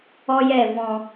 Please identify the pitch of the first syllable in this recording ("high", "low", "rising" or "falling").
high